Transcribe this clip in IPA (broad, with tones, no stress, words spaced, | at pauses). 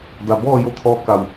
da˩bɔː˥˨jo˧˥t̪ʰɔː˧ ka˧˩w